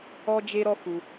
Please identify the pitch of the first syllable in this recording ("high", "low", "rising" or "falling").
high